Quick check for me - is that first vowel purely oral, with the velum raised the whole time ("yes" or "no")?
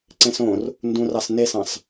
no